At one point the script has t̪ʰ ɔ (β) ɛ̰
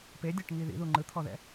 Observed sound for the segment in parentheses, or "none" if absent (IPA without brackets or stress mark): ð